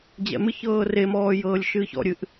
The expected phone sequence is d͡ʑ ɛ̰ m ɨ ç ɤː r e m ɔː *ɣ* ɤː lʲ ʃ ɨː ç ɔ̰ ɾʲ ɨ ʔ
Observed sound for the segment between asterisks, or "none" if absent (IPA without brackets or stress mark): j